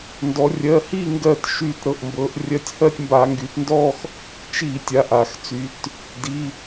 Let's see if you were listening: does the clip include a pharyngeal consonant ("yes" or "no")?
no